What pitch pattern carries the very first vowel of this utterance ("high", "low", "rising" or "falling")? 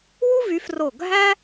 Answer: high